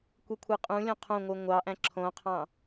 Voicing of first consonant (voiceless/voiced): voiceless